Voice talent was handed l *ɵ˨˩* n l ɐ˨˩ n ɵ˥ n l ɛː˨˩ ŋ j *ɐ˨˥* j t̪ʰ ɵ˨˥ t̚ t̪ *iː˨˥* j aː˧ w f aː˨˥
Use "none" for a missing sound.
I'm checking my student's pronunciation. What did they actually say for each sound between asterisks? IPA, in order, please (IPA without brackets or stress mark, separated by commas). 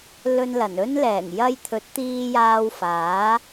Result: ɵ˧, ɐ˧, iː˧